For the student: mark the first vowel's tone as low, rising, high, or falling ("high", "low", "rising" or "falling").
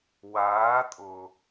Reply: rising